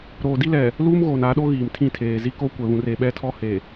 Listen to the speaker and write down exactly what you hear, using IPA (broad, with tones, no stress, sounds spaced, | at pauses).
ɾ oː˨ d i˦ l ɛ˨ | l uː˦ m ɣ oː˨ n a˨˦ ɗ o˦ ɣ iː˨ m tʰ ĩ˦˨ tʰ eː˨ z i˦ k o˦ kʷ ɛ˨ β ũ˨ r e˨ ɓ ɛ˦ tʰ ɔ˦ h e˨